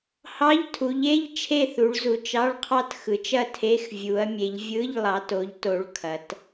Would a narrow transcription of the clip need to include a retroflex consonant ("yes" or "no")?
yes